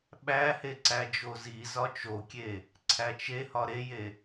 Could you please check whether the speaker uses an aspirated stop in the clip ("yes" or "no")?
yes